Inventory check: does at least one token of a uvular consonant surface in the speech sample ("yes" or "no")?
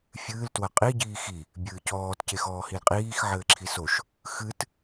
yes